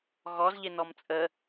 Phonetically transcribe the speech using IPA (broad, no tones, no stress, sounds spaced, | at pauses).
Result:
ɣ ɔ z ʎ ɪ n ɔ m t͡sʼ ə